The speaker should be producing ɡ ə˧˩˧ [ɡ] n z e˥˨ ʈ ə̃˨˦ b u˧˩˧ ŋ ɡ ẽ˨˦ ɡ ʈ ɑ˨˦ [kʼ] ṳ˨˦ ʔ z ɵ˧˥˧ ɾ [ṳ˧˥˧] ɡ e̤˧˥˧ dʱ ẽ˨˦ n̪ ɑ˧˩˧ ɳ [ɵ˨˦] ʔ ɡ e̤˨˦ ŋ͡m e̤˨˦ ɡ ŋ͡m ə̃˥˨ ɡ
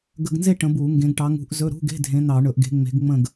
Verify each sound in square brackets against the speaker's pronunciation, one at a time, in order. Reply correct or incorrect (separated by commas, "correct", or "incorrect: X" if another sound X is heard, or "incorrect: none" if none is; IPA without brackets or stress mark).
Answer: correct, incorrect: ŋ, correct, incorrect: ɵ˧˩˧